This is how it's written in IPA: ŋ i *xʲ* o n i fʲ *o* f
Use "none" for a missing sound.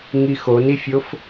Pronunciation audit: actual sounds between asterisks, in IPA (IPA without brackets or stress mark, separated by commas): x, o